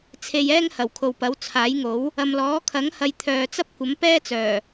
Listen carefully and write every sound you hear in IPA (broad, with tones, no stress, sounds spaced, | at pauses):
t͡sʰ e˧ j ɛː˥ ŋ h ɐ˨˩ w kʰ o˨ w p ɐ˨˥ w t͡sʰ aː˨˥ j ŋ o˨˥ w | ɐ˨ m l ɔː˨˥ kʰ ɐ˨˥ ŋ h ɐ˨˧ j t̪ʰ œː˨ t͡s ɐ˥ p̚ kʷ ɐ˨˥ m p ɛː˥ t͡s œː˨˩